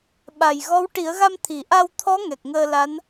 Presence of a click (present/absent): absent